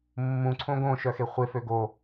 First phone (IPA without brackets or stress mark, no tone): mː